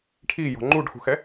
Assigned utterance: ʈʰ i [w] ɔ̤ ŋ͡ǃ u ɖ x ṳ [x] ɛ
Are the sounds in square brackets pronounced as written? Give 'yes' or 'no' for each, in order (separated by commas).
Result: no, yes